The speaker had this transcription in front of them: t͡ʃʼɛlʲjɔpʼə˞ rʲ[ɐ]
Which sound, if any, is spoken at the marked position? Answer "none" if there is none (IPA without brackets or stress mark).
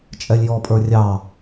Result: ɑ